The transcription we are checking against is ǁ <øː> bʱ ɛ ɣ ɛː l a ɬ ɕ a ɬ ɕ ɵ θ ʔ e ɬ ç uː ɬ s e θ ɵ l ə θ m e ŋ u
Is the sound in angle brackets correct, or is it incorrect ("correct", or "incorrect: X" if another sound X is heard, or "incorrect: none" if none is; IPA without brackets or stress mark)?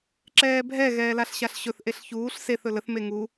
incorrect: ɛː